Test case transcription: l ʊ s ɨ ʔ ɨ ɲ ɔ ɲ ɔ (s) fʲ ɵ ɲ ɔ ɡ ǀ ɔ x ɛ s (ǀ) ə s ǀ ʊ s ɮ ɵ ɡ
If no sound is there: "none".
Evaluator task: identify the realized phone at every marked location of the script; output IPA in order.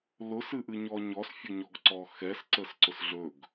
s, ǀ

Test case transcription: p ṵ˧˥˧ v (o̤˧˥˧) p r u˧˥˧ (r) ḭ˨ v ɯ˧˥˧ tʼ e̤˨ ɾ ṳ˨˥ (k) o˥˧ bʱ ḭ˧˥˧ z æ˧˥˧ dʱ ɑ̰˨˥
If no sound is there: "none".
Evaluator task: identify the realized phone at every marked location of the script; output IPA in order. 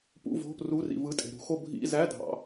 o̤˧˥˧, r, x

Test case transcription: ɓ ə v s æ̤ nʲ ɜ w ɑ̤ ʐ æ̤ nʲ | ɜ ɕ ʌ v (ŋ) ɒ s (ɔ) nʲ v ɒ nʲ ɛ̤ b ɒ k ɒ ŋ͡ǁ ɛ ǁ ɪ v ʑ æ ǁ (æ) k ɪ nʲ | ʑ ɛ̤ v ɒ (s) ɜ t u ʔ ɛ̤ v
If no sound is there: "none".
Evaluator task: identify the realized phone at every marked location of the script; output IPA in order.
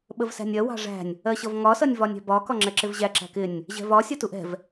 ŋ, ʌ, æ̤, sʲ

